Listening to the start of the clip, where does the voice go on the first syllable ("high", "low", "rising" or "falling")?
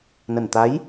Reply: low